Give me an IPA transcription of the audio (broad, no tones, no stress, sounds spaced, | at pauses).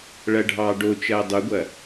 ɭ ɐ ɖʱ ɑː ɖ o t͡ʃ ɐː dˤ u ɡʷ ɐ